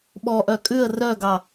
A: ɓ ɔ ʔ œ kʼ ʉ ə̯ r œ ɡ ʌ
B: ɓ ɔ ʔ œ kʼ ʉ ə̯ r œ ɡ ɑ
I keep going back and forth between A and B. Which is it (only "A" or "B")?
B